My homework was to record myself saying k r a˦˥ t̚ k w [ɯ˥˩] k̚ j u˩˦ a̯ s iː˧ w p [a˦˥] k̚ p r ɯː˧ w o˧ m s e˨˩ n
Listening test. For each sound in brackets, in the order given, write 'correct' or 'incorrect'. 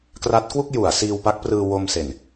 incorrect: u˥˩, correct

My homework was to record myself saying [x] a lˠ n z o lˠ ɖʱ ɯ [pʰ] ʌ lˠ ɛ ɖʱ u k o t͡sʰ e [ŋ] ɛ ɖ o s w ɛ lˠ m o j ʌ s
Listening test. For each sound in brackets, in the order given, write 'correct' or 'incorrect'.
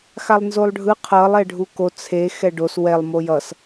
correct, incorrect: qʰ, incorrect: x

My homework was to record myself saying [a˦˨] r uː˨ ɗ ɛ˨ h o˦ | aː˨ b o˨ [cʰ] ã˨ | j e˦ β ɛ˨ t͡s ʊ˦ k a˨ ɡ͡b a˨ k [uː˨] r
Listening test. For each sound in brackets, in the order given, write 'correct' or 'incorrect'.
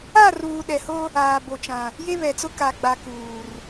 correct, incorrect: t͡ʃ, correct

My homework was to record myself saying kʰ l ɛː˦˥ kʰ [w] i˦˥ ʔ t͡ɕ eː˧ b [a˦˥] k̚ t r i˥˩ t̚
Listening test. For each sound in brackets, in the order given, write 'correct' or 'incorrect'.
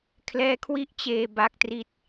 correct, correct

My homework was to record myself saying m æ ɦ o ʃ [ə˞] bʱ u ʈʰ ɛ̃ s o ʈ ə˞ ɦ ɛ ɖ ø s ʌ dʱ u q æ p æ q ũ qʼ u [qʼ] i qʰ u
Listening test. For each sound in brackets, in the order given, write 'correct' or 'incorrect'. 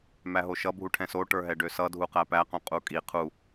incorrect: ʌ, incorrect: kʼ

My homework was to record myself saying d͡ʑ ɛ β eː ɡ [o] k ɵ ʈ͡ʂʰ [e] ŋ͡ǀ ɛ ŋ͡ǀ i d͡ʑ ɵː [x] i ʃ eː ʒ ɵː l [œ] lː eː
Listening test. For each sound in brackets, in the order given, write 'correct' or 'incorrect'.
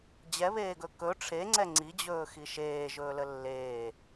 incorrect: ɵ, correct, correct, incorrect: ə

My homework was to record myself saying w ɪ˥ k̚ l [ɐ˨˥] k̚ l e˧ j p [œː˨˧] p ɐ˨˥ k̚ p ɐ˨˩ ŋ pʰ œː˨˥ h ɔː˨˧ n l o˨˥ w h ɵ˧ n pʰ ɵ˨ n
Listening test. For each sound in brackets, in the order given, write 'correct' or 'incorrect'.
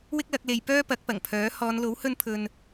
correct, incorrect: œː˥

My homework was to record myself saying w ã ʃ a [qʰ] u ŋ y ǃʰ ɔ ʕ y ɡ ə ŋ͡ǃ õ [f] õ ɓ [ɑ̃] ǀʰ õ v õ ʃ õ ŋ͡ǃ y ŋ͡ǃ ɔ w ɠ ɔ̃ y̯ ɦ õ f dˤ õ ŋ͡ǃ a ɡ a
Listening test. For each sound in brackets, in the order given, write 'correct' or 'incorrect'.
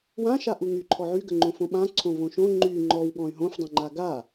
incorrect: ʔ, correct, incorrect: ã

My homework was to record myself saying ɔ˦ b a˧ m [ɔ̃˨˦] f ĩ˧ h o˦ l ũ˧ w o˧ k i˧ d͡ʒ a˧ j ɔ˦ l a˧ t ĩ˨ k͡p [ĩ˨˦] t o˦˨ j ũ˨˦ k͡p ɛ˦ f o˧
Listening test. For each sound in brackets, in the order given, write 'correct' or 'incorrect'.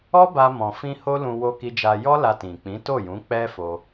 incorrect: ɔ̃˨, correct

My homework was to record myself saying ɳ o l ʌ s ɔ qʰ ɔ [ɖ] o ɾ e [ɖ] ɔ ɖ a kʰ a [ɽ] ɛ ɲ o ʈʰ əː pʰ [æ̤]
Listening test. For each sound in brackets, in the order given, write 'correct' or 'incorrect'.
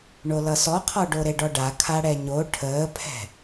correct, correct, correct, incorrect: ɛ̤

